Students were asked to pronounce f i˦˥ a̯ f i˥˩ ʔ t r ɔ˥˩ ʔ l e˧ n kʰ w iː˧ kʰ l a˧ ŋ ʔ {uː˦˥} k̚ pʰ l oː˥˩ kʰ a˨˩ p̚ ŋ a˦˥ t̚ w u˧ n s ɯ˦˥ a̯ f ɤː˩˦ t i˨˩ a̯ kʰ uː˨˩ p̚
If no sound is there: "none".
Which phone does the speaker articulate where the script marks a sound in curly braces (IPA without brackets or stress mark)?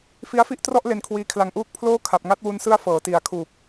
uː˦˥